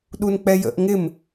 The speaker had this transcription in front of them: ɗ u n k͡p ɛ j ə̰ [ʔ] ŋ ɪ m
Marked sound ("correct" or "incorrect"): correct